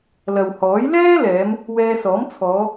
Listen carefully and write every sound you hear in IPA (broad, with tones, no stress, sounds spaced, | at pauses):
l ɐ˨ w h ɔː˨˥ j l ɛː˥ l ɛː˨˧ m | w ɛː˧ s ɔː˨˥ m t͡sʰ ɔː˨˧